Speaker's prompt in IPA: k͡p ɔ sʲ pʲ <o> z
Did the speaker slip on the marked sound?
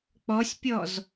yes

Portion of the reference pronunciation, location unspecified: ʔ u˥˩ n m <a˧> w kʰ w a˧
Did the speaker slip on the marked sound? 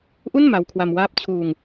no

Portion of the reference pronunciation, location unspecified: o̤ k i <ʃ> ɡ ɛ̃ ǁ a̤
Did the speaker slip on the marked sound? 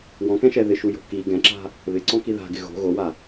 yes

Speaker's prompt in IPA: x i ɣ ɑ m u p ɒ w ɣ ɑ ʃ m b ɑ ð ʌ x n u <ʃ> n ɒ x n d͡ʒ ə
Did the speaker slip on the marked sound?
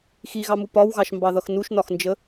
no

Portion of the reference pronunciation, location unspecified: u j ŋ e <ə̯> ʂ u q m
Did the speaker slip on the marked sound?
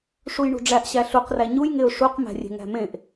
yes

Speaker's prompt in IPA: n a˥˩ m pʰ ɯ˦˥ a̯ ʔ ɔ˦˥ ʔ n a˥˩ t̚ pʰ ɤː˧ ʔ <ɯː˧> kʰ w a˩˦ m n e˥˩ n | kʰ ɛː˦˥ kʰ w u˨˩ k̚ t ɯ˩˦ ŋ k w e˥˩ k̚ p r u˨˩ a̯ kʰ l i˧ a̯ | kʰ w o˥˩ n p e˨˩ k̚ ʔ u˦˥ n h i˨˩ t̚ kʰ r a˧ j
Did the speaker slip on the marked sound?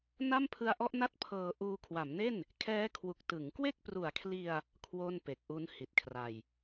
yes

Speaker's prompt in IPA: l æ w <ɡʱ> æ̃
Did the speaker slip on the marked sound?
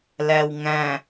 yes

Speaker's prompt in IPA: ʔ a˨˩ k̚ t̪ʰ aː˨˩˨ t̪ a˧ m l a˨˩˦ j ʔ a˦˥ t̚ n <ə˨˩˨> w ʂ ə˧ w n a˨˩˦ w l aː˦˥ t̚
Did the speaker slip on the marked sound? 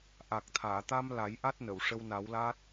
no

